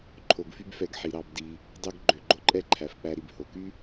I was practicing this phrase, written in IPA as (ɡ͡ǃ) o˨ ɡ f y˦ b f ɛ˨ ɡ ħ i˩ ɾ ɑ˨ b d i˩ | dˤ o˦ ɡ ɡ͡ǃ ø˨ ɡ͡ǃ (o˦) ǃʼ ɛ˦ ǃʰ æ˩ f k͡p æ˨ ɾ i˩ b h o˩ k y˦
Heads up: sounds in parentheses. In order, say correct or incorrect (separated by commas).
incorrect, correct